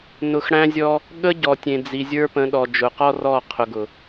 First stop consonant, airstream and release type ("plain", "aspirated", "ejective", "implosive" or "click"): implosive